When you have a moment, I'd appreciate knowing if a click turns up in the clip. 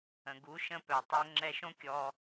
yes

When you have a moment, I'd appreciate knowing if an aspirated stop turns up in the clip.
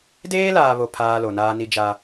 yes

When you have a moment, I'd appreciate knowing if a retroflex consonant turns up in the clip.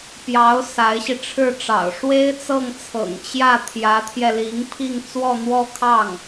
yes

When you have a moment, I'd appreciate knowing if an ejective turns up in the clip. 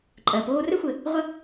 yes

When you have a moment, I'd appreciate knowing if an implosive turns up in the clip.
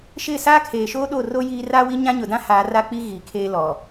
yes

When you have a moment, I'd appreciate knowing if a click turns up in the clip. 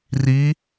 no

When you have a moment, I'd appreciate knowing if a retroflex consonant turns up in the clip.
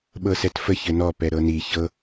no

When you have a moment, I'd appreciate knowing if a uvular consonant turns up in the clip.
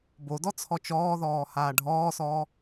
no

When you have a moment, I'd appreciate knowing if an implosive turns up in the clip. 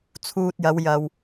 no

